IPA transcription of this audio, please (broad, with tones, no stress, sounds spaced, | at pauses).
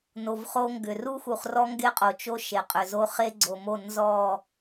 n o˨ v χ o˦ ŋ ɡ ʏ˨ r u˦ x u˨ χ r ɔ˦ ŋ ɡ e˦ qʼ o˨ t͡ʃ o˦ ʃ e˨ qʼ ʏ˨ z o˦ χ e˦ ɡ͡ǀ o˨ m o˦˨ n z ɔ˦˨